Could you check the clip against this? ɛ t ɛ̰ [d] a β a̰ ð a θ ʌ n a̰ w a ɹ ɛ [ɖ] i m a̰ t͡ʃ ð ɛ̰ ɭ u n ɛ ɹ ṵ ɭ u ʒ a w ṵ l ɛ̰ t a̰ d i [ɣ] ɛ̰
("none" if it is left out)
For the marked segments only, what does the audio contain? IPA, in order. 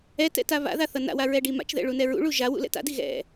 t, ɖ, ɣ

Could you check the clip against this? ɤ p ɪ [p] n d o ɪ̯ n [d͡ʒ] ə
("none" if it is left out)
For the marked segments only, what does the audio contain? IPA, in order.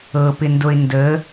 none, d

